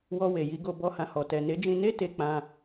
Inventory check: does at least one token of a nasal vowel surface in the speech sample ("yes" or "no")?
yes